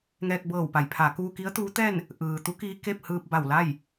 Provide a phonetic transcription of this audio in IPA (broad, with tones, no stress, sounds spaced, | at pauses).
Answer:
ŋ ɛː˧ k̚ b ɤː˧˩ w p a˩˧ j pʰ a˩˧ k uː˧ k i˧˥ ə̯ t̪ uː˧˥ t̪ ɛː˥˨ n | ʔ ɯː˩ t̪ u˧˥ k iː˧ k e˥˨ p̚ h ɯː˧ p̚ b a˧˩ w l a˥˨ j